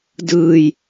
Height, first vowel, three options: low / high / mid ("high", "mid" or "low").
high